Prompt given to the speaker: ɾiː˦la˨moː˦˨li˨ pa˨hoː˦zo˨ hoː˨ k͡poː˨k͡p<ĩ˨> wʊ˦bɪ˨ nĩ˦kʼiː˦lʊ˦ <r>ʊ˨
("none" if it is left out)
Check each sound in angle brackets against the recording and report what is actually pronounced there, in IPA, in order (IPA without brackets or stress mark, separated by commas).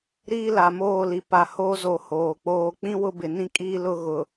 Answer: ĩ˦, ɣ